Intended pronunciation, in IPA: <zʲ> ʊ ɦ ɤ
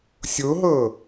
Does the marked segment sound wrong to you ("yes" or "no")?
yes